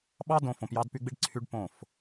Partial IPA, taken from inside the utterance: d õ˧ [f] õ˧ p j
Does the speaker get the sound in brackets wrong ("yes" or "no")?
no